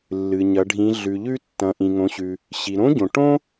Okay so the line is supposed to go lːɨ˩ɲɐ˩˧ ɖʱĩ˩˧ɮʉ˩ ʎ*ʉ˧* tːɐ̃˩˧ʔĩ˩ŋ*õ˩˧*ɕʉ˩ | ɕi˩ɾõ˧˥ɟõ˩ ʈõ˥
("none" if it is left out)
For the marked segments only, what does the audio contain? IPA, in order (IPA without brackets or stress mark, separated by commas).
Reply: ʉ˧, õ˩˧